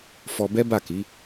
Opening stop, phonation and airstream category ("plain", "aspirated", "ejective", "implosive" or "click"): plain